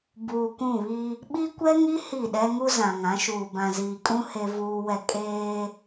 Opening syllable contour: low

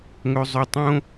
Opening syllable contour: low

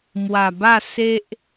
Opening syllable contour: low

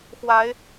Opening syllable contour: rising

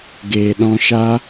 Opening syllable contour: low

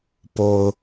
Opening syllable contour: low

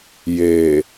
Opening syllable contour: low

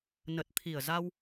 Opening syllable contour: low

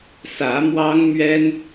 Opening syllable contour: rising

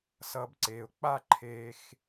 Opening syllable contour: high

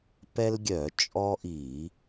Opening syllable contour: high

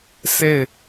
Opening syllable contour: falling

